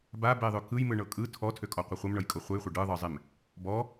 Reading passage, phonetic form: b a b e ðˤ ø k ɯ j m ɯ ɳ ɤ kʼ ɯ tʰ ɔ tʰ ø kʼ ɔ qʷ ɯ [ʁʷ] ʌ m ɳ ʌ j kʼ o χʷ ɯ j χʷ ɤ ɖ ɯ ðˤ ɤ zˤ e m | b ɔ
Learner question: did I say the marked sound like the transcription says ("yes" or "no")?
no